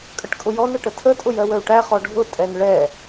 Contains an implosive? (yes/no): no